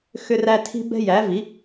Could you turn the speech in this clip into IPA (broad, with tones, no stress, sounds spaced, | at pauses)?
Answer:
x ʏ˦ r æ˦ tʰ i̤˦ b ɛ̤˦ j æ˨˥ v i˨˥